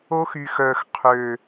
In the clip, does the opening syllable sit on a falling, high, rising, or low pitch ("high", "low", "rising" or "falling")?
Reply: high